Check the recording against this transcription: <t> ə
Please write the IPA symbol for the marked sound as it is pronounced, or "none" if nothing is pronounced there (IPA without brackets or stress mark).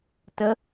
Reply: t